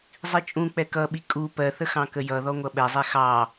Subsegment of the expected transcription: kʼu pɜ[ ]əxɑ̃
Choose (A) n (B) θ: B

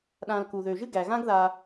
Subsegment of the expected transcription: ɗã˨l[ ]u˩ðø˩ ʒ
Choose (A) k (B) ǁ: A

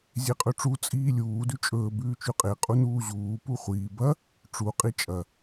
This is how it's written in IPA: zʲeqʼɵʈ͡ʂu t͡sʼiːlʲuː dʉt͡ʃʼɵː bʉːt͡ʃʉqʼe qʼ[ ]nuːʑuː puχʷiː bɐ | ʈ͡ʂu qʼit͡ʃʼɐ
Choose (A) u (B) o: A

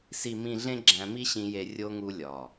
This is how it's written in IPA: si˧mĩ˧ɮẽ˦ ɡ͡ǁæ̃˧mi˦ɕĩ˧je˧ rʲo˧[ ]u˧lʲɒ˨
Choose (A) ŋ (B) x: A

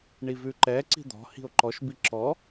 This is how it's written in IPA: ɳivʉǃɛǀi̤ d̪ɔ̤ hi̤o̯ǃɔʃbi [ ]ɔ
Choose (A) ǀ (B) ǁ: B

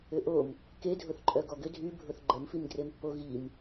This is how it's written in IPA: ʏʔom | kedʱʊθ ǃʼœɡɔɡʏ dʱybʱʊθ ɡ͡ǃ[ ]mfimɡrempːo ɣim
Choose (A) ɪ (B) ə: B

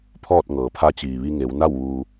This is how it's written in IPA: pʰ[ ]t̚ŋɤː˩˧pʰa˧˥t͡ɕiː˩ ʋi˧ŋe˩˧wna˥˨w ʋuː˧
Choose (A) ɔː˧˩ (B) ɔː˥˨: B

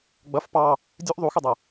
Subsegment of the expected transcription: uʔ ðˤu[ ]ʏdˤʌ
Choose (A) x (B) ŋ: A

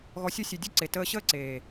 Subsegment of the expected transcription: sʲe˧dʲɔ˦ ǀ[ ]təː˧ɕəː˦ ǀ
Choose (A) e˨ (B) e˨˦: A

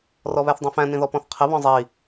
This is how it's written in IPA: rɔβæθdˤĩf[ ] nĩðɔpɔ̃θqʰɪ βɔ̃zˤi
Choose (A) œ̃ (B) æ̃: B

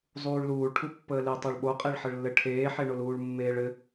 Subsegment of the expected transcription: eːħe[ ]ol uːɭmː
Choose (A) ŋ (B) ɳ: B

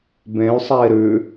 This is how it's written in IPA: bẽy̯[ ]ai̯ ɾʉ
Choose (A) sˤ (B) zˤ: A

